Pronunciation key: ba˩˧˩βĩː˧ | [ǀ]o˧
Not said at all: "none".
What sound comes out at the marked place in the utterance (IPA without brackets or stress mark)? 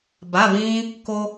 k